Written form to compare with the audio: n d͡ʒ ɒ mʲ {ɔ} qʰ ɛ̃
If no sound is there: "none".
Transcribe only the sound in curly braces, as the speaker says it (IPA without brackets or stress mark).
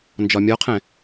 ɔ